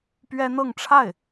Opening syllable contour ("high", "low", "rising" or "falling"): high